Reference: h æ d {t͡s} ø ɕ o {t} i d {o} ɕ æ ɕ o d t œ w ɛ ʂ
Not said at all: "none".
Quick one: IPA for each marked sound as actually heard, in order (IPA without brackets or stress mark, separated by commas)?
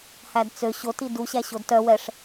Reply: t͡s, t, u